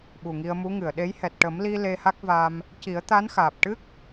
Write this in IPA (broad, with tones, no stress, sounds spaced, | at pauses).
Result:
ɓ u˨˩ ŋ i˧ ə̯ m u˧˥ ŋ ɨ˨˩˨ ə̯ ɗ e˧˥ j h ɛ˨˩ t̚ ʈ ə˨˩˦ m l i˧ l e˧ h a˦˥ k̚ v aː˧ m | c i˨˩˦ ə̯ t̪ a˧˥ n x aː˨˩ p̚ ʈ ɨ˦˥ k̚